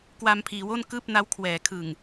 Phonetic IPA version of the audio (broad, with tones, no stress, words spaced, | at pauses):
kwa˧mpʰiː˩˦wo˥˩n kɯː˥˩p̚na˦˥wkʰwɛː˩˦ kʰɯː˨˩ŋ